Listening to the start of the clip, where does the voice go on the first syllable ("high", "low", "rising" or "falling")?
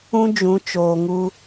high